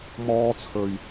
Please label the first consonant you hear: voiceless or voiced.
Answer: voiced